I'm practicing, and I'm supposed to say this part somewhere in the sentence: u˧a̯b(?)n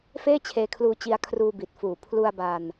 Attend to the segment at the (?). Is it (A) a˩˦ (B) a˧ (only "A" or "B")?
B